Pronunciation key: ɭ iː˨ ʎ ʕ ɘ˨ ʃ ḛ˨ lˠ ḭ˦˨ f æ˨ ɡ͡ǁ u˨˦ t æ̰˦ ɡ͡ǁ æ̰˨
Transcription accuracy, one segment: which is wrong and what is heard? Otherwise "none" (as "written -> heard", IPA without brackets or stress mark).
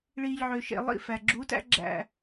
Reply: ɘ˨ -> ø˨